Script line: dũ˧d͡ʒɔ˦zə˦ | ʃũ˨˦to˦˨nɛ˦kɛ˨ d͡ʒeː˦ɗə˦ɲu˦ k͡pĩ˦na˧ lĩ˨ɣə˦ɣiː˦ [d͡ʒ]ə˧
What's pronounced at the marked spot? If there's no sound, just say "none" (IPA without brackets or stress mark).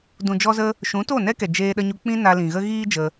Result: d͡ʒ